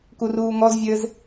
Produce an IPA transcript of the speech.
kuruːŋɔzvʲɘːz

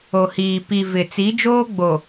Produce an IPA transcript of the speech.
o˨hiː˨ pi˨vɪ˨ t͡si˨˦d͡ʒoː˦ɡ͡bo˨

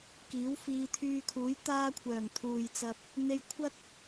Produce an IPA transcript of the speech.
kiː˨˥wfiː˧t̪ʰyː˧kʰuː˨˥j t̪aː˥kʷʰœː˨˩ŋ t̪ʰuː˨jt͡sɐ˧p̚ | n̪e˧jkʷʰɐ˥t̚

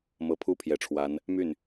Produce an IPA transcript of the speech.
mɤ˧˥pʰu˥pʰjɛ˨˩ʈ͡ʂʰwa˧˥n | my˥˩n

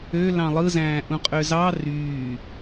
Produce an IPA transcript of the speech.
ø lɑ̃lˠɯzæ̃ːʔũ qʼøzɑ ryː

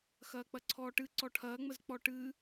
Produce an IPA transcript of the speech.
xɐːk͡pɐǀʰɔːʈɨ ǀɔʈʰɐːŋ͡məz k͡pɔʈɨ

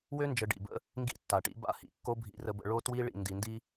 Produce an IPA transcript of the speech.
wø˦ nd͡ʒə˨ ɖḭ˨bə̰˦ | ŋɡḭ˦tːa˨ʈḭ˦ ba̰˦˨hḭ˨kːo˦ bʱḭ˨rə˨bə̰˨ ɭo˦twi˦ ɭḭ˨ndi˨ndi˦

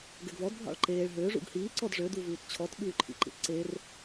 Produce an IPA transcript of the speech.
ɡɛɡvɔd bʱɑ̰ɭǃeːɭ ɦø ʐṵɡhiː ǀɔdʐø duvʉːtt͡ɕʰɔt ɓʉːǃʰḭǃḭtǀer

